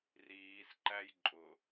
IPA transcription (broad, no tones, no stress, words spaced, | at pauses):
riːsǃæj ǃʼʊ